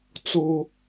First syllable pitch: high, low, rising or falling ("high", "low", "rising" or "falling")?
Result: high